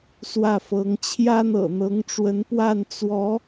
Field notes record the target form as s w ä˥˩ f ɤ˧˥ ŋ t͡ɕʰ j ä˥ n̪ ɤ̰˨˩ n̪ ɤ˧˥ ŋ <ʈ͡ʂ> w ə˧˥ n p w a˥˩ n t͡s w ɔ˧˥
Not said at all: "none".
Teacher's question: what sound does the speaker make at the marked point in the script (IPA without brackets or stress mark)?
ʈ͡ʂ